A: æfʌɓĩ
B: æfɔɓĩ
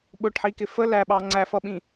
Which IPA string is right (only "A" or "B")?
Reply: A